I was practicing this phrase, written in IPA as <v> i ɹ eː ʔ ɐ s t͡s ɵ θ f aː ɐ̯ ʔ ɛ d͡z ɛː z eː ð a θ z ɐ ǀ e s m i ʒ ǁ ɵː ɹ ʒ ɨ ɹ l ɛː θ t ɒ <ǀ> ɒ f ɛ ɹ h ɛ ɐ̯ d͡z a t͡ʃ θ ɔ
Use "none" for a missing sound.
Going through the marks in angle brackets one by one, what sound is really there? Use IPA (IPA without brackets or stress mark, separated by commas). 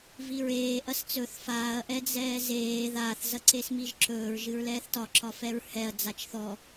v, ǁ